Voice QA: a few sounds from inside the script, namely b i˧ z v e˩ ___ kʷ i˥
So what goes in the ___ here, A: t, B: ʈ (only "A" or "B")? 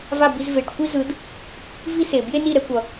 B